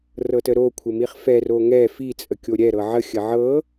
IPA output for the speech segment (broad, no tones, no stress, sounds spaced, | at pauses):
r ɤ t ə ɾ o kʷʰ ə m i χ f ɛ r o ŋ ɛ f i t͡sʼ ə kʲ o ɾʲ ɛ ɾ ɤ ʕ ə xʲ ə ʕ ɤ